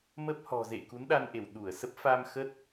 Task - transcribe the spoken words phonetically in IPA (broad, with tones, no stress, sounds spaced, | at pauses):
m ə˦˥ p̚ h ɔ̤˨˩ z ḛ˧˨ k u˨˦ n ɗ a˧ n ʔ e˧˩ w ɗ u˧˩ ə̯ s ə˦˥ p̚ f a˧ m x ə˦˥ t̚